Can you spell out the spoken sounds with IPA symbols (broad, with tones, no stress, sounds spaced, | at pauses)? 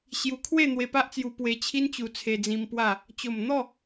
ɕ j u˧ kʰ w e˥˧ n̪ w e˧ p a˦ ʔ t͡s j u˧ p w e˧ t͡ɕʰ i˦ n t͡ɕ u˧ t͡sʰ e˧ d͡z ĩ˧ m p w a˥˧ | t͡ɕ o˨˩ m n̪ ɔ˥˧